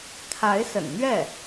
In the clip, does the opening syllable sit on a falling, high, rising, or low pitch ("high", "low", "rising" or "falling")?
rising